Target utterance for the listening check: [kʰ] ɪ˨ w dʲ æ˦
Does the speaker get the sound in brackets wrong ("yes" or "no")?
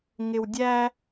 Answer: yes